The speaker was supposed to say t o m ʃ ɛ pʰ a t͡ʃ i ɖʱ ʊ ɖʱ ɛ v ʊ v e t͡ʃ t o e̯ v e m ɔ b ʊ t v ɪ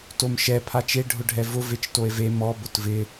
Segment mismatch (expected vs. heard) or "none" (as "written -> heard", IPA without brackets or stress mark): i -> e